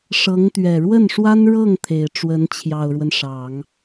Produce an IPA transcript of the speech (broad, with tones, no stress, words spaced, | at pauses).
ʂɤ˧˥ŋt̪ɥɛ˨˩ ɻwə˥˩nʂwa˥nɻɤ˥˩ŋ t̪ʰe˨˩ɪ̯ ʈ͡ʂwə˧˥nt͡ɕʰjɑ˨˩ʊ̯ɻwə˦n ʂɑ˨˩˦ŋ